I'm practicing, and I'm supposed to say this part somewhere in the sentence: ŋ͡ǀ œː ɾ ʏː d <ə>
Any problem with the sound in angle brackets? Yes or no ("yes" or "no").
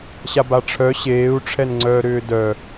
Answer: yes